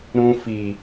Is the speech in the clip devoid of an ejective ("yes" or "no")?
yes